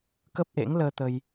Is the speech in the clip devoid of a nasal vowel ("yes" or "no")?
yes